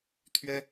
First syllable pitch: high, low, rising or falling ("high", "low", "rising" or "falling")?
high